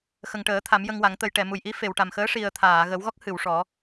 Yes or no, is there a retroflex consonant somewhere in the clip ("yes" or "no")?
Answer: yes